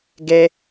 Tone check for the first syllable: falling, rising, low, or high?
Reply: high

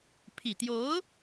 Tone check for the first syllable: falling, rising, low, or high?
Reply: low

